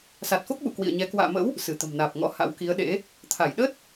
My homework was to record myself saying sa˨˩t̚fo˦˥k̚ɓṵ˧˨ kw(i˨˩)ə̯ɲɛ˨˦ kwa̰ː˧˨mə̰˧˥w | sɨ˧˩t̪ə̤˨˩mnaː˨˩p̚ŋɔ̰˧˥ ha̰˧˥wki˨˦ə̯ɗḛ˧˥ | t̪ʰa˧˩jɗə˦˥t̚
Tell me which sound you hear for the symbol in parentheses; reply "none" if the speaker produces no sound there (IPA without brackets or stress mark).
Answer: ḭ˧˨